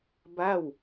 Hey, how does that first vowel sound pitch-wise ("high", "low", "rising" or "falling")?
falling